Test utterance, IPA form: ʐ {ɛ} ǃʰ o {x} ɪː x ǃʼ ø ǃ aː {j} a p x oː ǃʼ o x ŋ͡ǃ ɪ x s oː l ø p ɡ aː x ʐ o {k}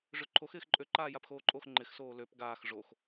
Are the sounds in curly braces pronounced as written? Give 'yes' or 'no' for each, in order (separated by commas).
no, yes, yes, no